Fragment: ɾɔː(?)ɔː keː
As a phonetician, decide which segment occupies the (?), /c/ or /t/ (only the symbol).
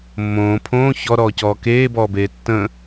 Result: c